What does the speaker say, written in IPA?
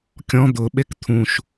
kʲɔ̃ d̪ʊɓek t̪ʰũʃ

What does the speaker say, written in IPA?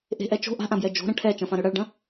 ʔe̤ʔɛ t͡ʃo̤ ʔa̤ʔãbjɛ d͡ʒo̤ɾɐ̃ ʈʰɛt͡ʃɐ̃fãɾø ɽɐɭɖɐ̃

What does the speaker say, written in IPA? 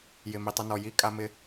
jɪ˨˩mi˨˩tˤɪ˧nɔ˨˩ ji˧ kʼa˧mɪ˧

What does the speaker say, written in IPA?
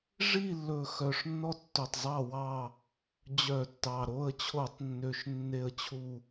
ʐi˦˨lːɵ˨˩ xœ˨˩ʂnːɔ˦˨ tːɵ˨˩tˤzˤɑ˦˨wɑ˦˨ | d͡ʑœ˧˩˧tːɑ˨˩ ɾo˦˨ə̯t͡ɕʰo˧˩˧tˤnːø˨˩ʃ nːe˦˨ə̯t͡ɕʰu˦˨

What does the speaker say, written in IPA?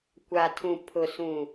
kʷa˨tʰũ˨pʰʊ˨sũ˨

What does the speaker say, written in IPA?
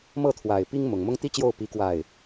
mɤ˥˩ t̪ʰwa˨˩ɪ̯ pi˥ŋ mʊ˨˩ŋmʊ˥ŋ t̪i˥t͡ɕjo˥˩ʊ̯ pi˥kwa˥˩ɪ̯

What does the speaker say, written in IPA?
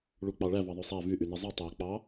ɭuk͡pɑɭæ vɑðˤøsˤæ vyʔyne zˤy tˤæ k͡pɑ

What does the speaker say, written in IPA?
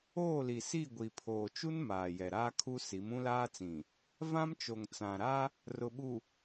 oː˦˨li˨si˦˨ ɡʷi˨pʰoː˨t͡ʃu˦n maː˨jɛ˨ɾaː˦kʰu˦ si˨˦mũ˦laː˦t͡sĩ˨ | vã˦mt͡ʃo˨ŋt͡sã˨ ɾa˦ | rʊ˨ɓu˨

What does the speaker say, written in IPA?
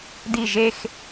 di ʒex

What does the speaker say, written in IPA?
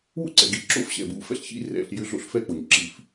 wṵ˦˥ǀɛ̰˩ɡḭ˧˩˧ ǁo̰˦˥fɕɛ̰˩bṵ˧˩˧ fɛ̰˦˥ɬçḭ˦˥ rɛ̰˧˩˧ɬjʏ˦˥ ɮo̰˦˥ɬfɛ˦˥k͡po˩ɲǁi˧˩˧f

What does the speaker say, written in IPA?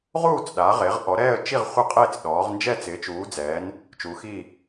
ʁuː˦˨t͡s ɗa˩˧ʁe˩˧ʁʔɔ˩˧ ɾɛː˦˨ə̯t͡ʃi˦˨ʁ χʷɪ˦˨qʼeː˦˨t͡s ɗɔː˩˧ʁ nd͡ʒɛ˦˨ t͡sɪː˩˧t͡ʃuː˩˧d͡zɛː˩˧n | t͡ʃu˩˧xiː˦˨

